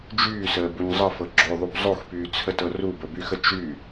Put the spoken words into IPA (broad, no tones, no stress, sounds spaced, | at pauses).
d͡ʒ yː s əː b u ɲ zˤ ə f ɤ ɡ͡ǁ o ðˤ u b zˤ o x p yː t͡sʰ ə t ɤ r u b ə b y x ə t͡ʃ y